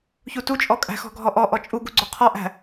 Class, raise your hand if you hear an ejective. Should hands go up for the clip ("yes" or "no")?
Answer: yes